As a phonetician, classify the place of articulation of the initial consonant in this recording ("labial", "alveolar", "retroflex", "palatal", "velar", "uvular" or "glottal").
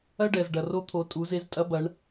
retroflex